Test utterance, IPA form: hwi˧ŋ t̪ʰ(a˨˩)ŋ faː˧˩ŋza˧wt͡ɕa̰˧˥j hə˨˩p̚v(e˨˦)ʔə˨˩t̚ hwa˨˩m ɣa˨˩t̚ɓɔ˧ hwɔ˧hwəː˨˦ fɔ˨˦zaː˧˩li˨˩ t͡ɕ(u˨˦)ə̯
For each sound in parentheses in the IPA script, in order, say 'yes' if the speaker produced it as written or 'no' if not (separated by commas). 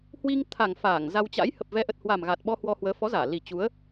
yes, no, yes